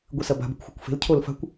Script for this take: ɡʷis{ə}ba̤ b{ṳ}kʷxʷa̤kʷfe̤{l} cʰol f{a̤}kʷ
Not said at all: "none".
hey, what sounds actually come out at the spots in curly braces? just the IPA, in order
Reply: ɐ, ṳ, l, a̤

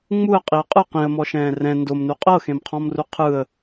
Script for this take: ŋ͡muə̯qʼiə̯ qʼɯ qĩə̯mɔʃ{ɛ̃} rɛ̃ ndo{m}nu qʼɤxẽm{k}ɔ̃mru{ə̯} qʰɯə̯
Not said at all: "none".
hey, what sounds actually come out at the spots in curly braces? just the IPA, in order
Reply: ɛ̃ː, m, qʰ, none

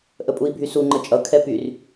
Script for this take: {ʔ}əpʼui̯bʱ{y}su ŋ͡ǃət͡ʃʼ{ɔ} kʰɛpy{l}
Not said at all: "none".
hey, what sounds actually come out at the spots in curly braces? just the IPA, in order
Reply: ʔ, y, ʌ, r

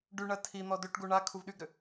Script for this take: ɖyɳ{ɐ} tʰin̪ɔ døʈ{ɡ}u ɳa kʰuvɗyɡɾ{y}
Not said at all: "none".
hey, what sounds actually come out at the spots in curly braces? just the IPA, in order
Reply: ɐ, ɡ, ʏ

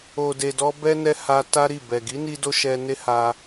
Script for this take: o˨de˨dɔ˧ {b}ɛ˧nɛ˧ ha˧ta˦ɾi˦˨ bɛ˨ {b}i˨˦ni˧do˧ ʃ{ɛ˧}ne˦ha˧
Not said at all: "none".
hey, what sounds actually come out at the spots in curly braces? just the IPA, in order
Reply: b, ɡ, ɛ˧

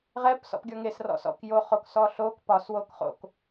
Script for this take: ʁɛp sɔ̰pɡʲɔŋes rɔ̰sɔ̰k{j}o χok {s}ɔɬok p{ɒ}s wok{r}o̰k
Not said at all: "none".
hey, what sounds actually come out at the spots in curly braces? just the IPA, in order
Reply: j, s, ɒ, χ

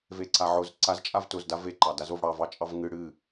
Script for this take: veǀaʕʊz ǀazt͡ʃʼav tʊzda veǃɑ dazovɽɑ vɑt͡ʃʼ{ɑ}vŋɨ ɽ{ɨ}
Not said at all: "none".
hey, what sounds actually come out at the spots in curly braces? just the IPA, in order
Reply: ɑ, ɨ

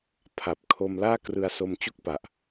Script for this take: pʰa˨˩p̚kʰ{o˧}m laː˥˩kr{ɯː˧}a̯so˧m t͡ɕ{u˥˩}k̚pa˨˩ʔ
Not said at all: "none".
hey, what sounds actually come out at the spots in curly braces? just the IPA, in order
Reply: o˧, ɯ˧, u˥˩

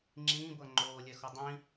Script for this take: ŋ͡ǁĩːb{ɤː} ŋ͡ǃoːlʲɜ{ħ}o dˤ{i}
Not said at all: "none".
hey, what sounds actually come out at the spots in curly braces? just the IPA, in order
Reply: ɤ, x, ĩ

